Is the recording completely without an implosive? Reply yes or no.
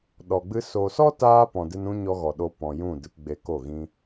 no